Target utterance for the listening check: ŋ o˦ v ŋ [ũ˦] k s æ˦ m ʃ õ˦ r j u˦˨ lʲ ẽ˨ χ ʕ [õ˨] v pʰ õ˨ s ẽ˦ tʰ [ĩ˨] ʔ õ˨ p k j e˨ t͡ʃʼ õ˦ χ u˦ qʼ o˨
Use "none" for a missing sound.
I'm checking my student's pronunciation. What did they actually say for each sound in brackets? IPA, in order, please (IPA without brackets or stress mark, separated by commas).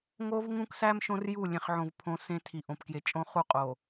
ũ˦, õ˨, i˨